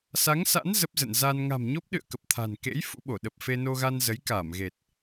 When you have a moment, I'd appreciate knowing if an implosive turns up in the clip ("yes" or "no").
yes